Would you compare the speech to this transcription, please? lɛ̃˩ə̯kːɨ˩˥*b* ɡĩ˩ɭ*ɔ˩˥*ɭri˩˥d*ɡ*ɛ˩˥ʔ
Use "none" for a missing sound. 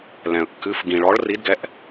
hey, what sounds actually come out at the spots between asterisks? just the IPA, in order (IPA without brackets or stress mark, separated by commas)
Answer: f, ɔ˩˥, ɡ